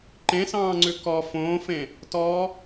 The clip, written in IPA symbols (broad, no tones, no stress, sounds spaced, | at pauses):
ǃ ẽ s ɑ̃ː ŋ͡ǀ ʉ k ɔ f õː f ẽ | t ɔ